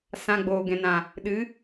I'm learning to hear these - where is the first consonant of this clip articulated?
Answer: tongue tip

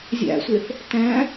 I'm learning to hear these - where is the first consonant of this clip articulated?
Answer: tongue tip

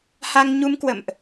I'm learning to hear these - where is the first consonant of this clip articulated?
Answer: throat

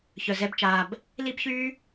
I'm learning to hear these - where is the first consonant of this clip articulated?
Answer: palate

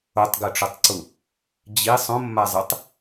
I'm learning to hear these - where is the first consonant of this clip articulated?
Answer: tongue tip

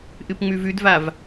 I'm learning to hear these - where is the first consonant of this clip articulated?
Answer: throat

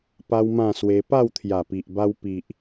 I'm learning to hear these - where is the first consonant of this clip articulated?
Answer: lips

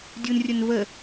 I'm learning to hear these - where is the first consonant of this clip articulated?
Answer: tongue tip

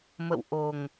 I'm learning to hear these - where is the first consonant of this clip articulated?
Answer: lips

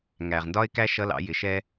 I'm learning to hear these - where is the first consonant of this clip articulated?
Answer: velum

